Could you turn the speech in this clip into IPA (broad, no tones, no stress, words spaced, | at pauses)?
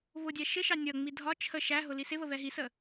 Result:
βʊdʲæ ʃɪʃɑ nʲʌŋ͡mi dʱɒ t͡ʃʰə ʃæɦʊ lisɪβə βɛɦisə